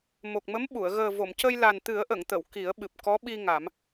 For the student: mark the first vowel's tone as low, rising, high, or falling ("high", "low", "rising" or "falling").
low